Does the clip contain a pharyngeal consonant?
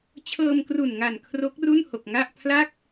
no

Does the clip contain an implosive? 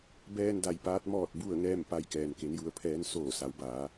no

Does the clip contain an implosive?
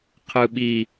yes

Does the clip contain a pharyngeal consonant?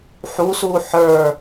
yes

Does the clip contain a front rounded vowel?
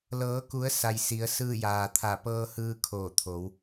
no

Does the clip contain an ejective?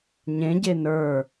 no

